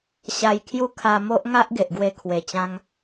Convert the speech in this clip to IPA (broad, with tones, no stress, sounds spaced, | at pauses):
ɕ a˧ j kʰ j u˦ kʰ a˧ m o˦ ʔ ŋ a˦ ʔ ɡ e˨ ʔ ɡ w e˧ kʰ w e˨˩ t͡ɕ ã˧ ŋ